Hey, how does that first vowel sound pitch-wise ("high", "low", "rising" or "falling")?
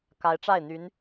rising